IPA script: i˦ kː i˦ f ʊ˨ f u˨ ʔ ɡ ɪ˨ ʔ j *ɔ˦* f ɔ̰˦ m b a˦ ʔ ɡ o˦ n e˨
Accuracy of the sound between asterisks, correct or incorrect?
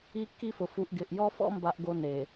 correct